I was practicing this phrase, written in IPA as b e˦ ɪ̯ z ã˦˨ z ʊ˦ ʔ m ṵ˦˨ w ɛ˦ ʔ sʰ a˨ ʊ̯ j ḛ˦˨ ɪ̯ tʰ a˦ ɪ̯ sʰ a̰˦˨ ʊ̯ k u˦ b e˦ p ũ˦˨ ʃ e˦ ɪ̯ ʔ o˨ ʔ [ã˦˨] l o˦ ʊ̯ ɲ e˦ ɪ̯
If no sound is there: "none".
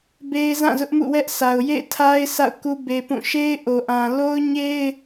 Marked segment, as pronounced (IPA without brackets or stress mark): ã˨